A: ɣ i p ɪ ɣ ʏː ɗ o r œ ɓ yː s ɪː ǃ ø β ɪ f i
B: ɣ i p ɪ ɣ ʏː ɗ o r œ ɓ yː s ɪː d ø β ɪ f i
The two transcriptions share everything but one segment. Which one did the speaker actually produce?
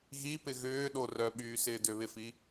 B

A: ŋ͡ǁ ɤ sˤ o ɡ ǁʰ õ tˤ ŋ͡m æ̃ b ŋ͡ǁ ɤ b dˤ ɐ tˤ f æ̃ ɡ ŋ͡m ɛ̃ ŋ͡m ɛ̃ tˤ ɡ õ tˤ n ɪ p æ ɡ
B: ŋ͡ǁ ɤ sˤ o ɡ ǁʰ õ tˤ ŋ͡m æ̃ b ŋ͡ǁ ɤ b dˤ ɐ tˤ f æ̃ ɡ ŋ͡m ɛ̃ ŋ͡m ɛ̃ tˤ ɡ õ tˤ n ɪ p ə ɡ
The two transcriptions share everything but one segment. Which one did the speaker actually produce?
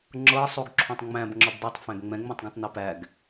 A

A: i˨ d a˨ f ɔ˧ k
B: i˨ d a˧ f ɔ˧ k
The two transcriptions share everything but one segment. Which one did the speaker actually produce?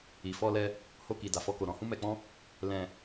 A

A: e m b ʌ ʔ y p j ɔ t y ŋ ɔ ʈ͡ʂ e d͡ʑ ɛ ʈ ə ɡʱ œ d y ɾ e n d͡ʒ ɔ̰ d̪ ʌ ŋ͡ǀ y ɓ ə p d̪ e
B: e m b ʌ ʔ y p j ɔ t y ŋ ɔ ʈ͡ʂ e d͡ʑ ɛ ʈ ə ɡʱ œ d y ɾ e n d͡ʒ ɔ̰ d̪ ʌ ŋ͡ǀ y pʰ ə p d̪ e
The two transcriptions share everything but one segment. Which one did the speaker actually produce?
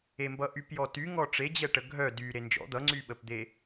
A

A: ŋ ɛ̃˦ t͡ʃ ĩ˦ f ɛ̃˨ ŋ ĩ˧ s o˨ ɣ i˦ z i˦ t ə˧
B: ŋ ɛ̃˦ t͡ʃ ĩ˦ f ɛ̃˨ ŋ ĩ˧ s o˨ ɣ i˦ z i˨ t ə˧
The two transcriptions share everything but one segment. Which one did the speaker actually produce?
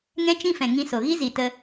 B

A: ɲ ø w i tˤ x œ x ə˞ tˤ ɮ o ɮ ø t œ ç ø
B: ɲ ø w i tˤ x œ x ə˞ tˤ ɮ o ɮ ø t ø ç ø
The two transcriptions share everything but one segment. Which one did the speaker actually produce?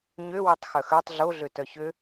A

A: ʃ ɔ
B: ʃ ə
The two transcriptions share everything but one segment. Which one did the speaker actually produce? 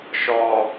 A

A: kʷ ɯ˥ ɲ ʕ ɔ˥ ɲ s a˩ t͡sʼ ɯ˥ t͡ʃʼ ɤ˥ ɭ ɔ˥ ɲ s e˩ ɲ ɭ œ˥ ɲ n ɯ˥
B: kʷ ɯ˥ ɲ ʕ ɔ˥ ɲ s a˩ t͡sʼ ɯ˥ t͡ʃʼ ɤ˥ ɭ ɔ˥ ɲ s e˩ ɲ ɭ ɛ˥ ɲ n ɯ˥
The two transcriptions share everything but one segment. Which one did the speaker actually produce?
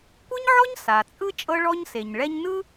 B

